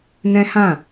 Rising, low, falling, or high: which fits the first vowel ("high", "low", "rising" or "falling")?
high